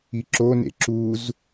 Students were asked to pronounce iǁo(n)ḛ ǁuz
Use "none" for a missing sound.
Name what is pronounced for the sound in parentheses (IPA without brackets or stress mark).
n